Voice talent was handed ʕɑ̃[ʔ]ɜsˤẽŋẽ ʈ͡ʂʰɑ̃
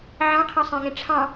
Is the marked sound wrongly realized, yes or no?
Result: yes